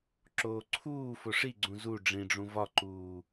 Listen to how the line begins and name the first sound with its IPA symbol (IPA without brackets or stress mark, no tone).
ǁ